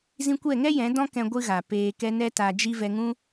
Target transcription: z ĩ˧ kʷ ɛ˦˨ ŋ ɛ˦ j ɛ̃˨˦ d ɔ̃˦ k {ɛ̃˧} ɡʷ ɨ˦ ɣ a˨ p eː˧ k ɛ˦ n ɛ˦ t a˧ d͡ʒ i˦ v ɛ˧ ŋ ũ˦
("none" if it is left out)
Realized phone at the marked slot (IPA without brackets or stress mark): ɛ̃˧